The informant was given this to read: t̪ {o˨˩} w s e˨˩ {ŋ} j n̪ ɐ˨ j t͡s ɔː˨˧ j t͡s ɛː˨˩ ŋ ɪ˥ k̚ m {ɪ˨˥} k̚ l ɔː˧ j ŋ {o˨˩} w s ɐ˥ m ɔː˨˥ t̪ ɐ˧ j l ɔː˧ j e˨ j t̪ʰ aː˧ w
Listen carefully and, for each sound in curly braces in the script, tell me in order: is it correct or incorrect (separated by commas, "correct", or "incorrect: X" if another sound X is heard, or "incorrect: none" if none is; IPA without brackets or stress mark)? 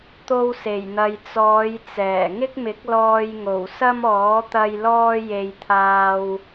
incorrect: o˧, incorrect: none, correct, correct